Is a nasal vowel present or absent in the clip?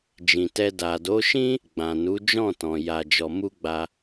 present